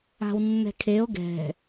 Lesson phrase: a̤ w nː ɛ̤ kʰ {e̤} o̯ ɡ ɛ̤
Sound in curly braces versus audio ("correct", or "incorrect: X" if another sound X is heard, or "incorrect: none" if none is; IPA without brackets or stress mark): incorrect: e